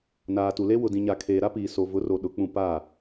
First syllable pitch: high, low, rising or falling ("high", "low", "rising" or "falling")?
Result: low